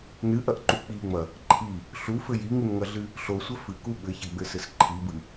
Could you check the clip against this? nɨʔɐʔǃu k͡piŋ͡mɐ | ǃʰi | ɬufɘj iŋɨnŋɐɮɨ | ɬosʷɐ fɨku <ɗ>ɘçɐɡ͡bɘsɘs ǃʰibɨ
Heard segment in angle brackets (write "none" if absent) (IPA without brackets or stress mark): ɓ